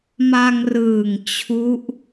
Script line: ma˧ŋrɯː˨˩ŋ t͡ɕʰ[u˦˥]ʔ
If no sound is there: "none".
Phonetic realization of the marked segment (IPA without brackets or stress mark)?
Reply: u˦˥